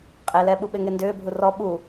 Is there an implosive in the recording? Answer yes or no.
yes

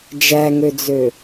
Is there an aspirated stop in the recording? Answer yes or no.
no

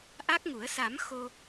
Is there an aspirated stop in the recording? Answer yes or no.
no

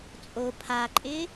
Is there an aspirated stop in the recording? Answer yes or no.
yes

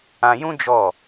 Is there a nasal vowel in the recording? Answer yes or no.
yes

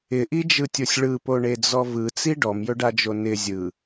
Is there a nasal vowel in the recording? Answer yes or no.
no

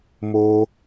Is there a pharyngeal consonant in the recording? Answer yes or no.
no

